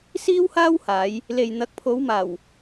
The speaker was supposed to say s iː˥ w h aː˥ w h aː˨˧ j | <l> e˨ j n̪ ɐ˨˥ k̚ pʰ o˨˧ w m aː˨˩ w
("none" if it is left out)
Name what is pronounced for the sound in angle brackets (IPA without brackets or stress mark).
l